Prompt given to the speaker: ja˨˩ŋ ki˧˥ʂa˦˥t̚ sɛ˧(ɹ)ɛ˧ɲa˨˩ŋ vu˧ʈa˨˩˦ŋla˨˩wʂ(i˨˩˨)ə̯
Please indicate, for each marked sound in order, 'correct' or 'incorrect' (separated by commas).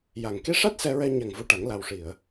correct, correct